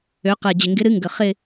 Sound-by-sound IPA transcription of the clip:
ø˩˧ q ɛ˨˩ d͡ʑ ɪ˨˩ ŋ ɡ ɪ˨˥ ɾ ɨ˨˥ ŋ ɡ ə˨˩ χ ɪ˥˧

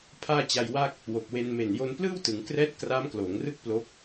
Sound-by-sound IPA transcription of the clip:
pʰ aː˥˩ t͡ɕ a˧ j w a˥˩ k̚ | w o˨˩ k̚ w e˧ n m e˨˩ n j o˧ n p l ɯː˥˩ w t ɯ˩˦ ŋ k r ɛː˦˥ t̚ k r aː˦˥ m k l oː˩˦ ŋ r ɯ˥˩ k̚ p l o˦˥ k̚

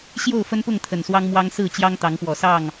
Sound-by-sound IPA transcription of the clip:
ɕ j o˥˨ ʊ̯ f ə˦ n p ʊ˥˨ ŋ t̪ʰ ə˨˩ n s w ɑ˦ ŋ m w ɑ˦ ŋ s ɹ̩˥˨ t͡ɕ j ɑ˦ ŋ t̪ ɑ˨˦ ŋ p w ɔ˨˩ s ɑ˥˨ ŋ

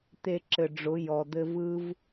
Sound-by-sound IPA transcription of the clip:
t̪ e˧ ǁ ɘ˨ ɖ͡ʐ ʊ˨˦ j ɔ˨ d̪ ɘ˦ v ɯ˦ v

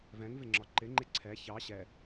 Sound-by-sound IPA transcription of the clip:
v ɛ̃ ŋ v ɪ ŋ͡ǁ ɒ ǃ ɪ ŋ͡ǃ ɪ ǀʰ ɛ ç ɑ ɕ ɛ

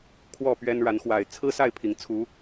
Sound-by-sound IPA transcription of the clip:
kʰ w ɔ˥˨ p ɥ ɛ˦ n ɻ a˨˦ n x w a˨˩ ɪ̯ t͡sʰ ɹ̩˦ s a˥˨ ɪ̯ pʰ i˨˩ ŋ t͡sʰ u˨˦

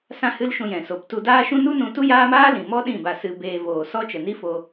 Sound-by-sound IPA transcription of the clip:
s ã˦ h ɨ˦ l ʃ ũ˧ j ɛ̃˨ s o˨ p t u˧ d aː˦ ʃ ũ˦ n u˦ n ũ˧ t u˦ j aː˦ m aː˦ l ĩ˨ m ɔ˦ ɗ ĩ˦˨ b a˧ s ɨ˧ b eː˧ v oː˨ s ɔ˦ t͡ʃ ə˨ n i˦ f o˧

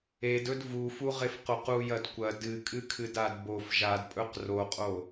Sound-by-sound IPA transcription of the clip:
e d ɵ d v u f u ʁ e f q o q u j ɐ d kʷ ɐ d ɨ kʼ ɨ kʰ ɨ d a d b o f ʒ a d pʼ ɵ q r o qʼ o

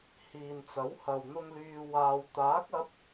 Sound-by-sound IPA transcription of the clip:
h iː˨ n t͡s ɐ˨˥ w h ɐ˨ w n̪ ʊ˧ ŋ l yː˨ w aː˨ w t̪ aː˨˥ k̚ ɐ˨˥ p̚

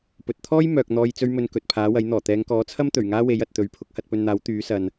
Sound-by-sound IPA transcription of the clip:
p ɵ˨ t̚ t̪ʰ ɔː˥ j m œː˨ k̚ n̪ ɔː˧ j t͡s ɵ˥ ɥ m ɵ˧ n k ɵ˨ t̚ pʰ aː˨˥ w ɐ˨˥ j n̪ ɔː˨˩ t̪ ɛː˨˧ ŋ k ɔː˨˥ t͡sʰ ɐ˥ m t̪ ɵ˨˩ ɥ ŋ aː˥ w e˨˥ j ɐ˨ t̚ t̪ ɵ˨ ɥ pʰ ʊ˨˥ k̚ h ɐ˧ t̚ p ɵ˧ n n̪ aː˨˥ w t̪ yː˨˥ s ɐ˨ n

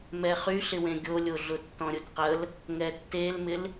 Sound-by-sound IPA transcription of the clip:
m ɛ χ y ɬ ɪ w ẽ ɡʲ o lʲ o ɮ ʊ tː ɔ̃ ɾʲ ʊ d q ə l | ŋ ɛ tː e l m ɪ l

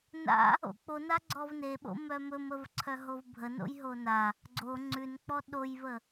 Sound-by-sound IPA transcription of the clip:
n a̰ | o̰ k͡p o n a ɡ͡ǀ ɔ v n e ɓ o̰ m œ m ɵ m ə v ǀʰ œ ɦ o v bʱ ə n o̰ j ɦ o n a | ɡ͡ǀ o ŋ͡ǀ ʉ n k͡p ɔ ɗ o j v ə

